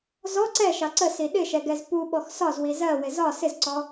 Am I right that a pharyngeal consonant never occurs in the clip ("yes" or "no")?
yes